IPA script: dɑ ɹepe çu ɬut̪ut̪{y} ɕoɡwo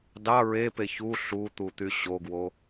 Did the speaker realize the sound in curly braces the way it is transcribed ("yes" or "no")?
yes